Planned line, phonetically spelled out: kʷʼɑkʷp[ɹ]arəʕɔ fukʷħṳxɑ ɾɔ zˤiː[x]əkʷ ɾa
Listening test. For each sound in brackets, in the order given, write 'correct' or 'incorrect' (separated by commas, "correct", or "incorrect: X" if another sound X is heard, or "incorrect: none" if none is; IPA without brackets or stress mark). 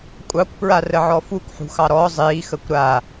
correct, correct